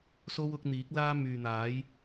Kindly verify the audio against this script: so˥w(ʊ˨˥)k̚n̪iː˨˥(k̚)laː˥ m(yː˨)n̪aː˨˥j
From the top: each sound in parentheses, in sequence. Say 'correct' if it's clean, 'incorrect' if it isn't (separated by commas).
correct, correct, correct